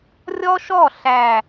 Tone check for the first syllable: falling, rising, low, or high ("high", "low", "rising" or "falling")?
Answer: high